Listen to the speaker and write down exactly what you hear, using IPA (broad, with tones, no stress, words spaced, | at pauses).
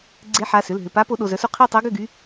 ɡ͡ǀe˧˥ħa˩˧˩sʏ˩˧˩l ɦʏ˩˧˩pa˧˥ po˧˥ɗo˩˧˩zœ˧˥su˥˧ qʰe˥˧tˤœ˧˥ ɡʏ˥˧ɡy˧˥